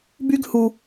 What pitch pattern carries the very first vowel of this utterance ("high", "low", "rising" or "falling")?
high